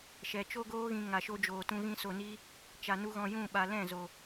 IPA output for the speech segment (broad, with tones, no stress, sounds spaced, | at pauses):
ʃ ɛ˨ t͡ʃ o˦ ɡ oː˦ ɣ ĩ˧ ŋ a˨ ʃ o˧ d͡ʒ oː˨ t ũ˧ ɣ ĩ˧ s o˨ n iː˧ | t͡ʃ a˧ n u˦ ɣ ɔ̃˧ j ũ˦˨ ɓ a˨ l ɛ̃˦˨ z o˨